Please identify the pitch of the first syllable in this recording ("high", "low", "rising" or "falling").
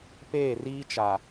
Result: falling